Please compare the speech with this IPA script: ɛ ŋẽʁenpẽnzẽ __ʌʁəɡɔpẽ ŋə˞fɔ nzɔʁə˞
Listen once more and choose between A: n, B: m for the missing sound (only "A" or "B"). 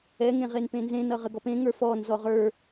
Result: A